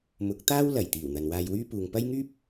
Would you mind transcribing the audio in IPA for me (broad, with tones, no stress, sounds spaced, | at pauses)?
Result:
m ʊ˨˥ k̚ t̪ aː˥ w l ɐ˨˩ j t̪ iː˨˩ w n̪ ɐ˨ n w aː˧ j w yː˥ p uː˨ ŋ p ɐ˥ j ŋ yː˥ p̚